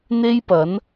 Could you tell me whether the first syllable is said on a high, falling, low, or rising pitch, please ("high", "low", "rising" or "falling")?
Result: high